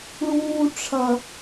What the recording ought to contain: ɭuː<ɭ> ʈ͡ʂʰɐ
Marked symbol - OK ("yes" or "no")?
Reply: no